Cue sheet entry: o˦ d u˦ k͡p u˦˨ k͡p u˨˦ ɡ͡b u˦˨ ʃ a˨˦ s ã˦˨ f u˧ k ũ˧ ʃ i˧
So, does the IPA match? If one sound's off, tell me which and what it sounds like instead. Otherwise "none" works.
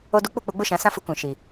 a˨˦ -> ã˨˦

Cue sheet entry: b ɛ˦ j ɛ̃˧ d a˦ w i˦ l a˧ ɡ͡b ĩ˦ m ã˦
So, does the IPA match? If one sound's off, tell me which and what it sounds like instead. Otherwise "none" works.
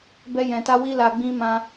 d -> t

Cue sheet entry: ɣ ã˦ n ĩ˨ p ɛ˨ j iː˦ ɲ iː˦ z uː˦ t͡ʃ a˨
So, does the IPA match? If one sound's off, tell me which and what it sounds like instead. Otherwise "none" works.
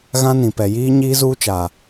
none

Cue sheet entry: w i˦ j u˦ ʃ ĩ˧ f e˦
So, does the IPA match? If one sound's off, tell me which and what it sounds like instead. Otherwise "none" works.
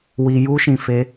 none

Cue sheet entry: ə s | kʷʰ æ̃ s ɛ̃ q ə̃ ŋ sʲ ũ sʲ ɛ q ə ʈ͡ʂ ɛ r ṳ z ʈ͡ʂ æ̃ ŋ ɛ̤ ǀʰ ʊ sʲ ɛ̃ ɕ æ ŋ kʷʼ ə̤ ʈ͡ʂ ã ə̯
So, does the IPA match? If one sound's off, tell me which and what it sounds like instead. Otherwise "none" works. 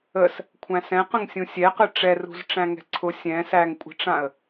ɕ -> s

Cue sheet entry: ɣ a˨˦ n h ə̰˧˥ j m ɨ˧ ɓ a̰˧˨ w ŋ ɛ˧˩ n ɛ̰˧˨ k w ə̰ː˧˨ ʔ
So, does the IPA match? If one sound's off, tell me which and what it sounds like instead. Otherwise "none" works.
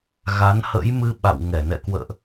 none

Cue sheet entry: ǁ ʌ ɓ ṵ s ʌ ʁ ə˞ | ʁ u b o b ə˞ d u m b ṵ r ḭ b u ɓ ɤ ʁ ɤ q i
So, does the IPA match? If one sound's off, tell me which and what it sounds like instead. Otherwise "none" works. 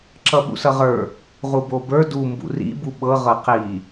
none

